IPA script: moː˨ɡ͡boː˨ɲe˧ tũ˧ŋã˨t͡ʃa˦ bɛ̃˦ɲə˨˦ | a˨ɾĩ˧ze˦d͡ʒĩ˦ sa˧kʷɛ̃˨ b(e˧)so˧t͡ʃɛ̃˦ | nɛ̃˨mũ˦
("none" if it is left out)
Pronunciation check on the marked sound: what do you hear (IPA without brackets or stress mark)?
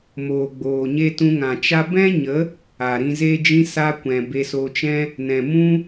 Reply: e˧